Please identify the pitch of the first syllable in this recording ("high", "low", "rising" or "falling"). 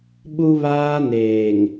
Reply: high